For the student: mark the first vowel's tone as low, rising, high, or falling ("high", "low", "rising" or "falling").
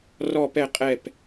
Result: falling